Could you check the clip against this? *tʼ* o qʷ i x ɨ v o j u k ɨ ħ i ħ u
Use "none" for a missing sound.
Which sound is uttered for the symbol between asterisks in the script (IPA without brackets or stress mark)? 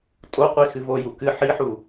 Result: tʼ